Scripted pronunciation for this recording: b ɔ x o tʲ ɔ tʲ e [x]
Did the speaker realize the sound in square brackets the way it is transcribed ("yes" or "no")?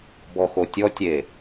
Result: no